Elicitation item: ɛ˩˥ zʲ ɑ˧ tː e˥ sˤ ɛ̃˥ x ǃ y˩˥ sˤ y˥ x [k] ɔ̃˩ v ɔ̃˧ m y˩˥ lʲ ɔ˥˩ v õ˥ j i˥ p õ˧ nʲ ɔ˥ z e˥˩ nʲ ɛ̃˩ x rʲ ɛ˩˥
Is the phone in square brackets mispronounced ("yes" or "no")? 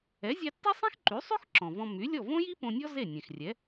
yes